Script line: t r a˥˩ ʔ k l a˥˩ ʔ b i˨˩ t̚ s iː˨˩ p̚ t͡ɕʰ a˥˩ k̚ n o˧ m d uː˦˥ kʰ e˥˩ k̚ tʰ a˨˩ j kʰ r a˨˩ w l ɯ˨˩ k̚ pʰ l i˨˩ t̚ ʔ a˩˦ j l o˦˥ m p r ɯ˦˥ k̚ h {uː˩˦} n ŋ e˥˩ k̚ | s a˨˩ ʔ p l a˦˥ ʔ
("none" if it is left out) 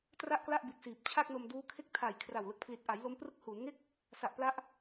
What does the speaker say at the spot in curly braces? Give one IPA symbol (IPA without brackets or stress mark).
uː˩˦